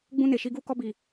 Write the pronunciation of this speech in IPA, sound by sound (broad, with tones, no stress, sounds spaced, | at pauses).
ɡ͡b ũ˦ n e˨ ʃ i˦ ɡ uː˦ k ɔ˦ b i˨